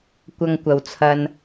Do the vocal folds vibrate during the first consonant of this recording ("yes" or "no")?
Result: no